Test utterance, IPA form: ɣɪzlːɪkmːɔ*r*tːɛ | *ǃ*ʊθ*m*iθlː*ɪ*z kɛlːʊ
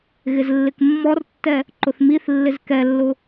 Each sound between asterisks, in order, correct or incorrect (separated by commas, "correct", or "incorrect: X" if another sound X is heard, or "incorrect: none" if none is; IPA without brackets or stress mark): correct, correct, correct, correct